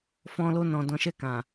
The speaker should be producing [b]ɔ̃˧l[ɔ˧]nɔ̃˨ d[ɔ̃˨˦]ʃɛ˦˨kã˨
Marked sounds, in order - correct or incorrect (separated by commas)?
incorrect, incorrect, correct